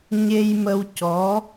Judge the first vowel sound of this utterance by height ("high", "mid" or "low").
mid